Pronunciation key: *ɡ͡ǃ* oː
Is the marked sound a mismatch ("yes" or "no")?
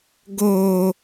yes